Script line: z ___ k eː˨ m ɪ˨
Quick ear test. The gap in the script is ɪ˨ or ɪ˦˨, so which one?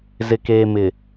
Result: ɪ˨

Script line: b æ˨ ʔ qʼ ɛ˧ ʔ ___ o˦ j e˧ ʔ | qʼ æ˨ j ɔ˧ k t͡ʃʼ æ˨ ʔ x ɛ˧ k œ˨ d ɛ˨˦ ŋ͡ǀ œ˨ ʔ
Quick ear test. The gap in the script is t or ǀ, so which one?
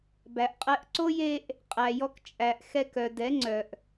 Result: ǀ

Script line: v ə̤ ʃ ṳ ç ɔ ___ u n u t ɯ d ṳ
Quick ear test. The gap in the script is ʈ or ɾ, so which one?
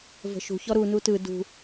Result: ɾ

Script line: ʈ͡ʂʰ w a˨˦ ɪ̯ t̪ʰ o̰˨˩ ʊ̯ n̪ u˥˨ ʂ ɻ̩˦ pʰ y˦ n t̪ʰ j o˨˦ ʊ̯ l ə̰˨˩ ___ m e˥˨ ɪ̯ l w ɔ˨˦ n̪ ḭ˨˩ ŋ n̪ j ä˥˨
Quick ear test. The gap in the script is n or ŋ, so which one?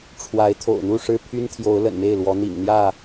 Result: n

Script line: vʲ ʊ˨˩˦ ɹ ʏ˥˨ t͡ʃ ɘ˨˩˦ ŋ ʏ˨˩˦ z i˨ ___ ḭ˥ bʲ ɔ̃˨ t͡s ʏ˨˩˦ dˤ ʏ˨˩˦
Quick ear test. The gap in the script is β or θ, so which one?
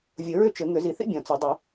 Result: θ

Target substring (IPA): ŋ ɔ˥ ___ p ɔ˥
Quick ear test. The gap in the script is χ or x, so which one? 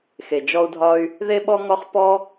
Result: χ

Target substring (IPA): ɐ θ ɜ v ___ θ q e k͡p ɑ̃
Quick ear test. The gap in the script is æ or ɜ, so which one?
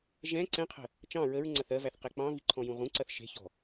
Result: æ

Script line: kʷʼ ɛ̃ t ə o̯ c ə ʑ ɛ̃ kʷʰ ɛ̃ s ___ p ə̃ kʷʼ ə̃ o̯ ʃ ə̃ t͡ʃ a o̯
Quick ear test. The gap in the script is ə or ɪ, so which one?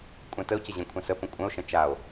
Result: ə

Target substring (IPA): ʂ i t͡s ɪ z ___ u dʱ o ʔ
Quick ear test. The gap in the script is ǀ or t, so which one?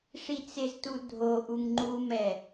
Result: t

